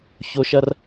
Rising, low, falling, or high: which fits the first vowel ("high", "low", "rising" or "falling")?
high